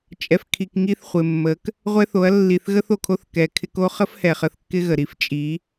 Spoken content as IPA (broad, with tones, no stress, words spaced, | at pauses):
t͡ʃʼɛ˨fkʰi˨k ŋi˦θχʷɪ˨mːə˨˦k | ʁʷɛ˦ θo˨˦ɐ̯ lːi˨θɣə˦θ o˨kʰo˦θ kɛ˨ kʰɪ˧ko˦χə˦fhɛ˨ χə˧θkːɪ˦ɣə˨ ɾi˧ft͡ʃʼi˨˦